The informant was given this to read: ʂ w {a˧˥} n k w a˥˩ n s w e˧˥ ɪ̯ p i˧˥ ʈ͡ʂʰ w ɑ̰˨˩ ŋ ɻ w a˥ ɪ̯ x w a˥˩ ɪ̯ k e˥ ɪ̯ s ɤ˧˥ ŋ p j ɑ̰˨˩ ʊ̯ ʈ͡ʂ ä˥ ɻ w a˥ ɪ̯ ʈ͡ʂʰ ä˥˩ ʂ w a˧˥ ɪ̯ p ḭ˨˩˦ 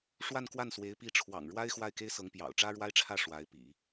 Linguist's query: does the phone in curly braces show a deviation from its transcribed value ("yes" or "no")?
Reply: yes